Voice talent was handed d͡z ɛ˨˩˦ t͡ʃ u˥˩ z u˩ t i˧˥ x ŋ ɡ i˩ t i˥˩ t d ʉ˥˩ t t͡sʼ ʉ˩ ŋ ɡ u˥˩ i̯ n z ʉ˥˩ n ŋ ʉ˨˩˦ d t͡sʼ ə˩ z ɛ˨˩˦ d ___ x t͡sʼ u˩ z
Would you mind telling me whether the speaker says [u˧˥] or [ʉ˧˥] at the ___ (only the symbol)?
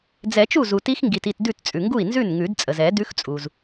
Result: ʉ˧˥